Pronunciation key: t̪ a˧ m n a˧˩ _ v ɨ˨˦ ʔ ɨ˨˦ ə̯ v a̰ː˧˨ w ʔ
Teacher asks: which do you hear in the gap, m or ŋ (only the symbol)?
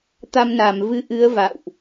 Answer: m